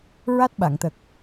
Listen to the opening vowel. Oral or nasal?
oral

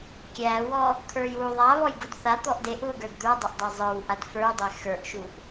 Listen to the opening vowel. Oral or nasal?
oral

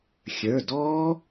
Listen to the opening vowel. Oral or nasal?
oral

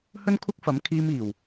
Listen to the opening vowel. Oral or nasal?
oral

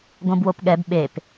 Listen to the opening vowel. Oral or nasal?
nasal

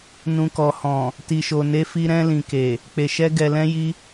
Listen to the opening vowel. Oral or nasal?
nasal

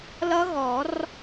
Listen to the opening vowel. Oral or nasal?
oral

